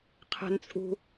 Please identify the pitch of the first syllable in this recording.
high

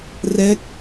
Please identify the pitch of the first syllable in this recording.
falling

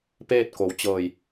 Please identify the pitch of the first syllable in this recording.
falling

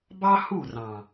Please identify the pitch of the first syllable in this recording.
high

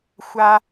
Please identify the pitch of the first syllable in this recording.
high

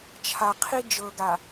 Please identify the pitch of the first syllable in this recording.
low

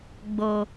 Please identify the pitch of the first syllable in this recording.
low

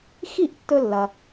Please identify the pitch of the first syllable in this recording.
falling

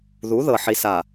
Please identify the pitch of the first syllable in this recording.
rising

